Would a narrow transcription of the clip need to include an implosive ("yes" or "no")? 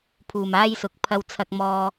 no